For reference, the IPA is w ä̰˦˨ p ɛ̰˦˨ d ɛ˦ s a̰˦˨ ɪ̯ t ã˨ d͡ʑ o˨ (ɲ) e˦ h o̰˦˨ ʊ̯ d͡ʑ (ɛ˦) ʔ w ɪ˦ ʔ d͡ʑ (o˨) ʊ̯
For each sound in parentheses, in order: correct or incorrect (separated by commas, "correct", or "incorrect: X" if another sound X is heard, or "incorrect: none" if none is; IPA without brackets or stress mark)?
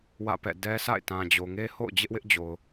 incorrect: ŋ, incorrect: ɪ˦, correct